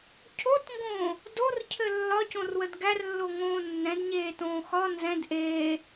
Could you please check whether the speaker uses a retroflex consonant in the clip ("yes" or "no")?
no